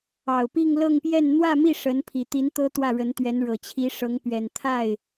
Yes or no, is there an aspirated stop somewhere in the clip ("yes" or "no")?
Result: yes